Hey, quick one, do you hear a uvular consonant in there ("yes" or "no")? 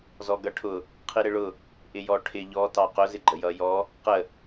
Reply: yes